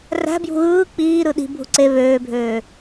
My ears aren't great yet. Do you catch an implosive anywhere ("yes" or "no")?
yes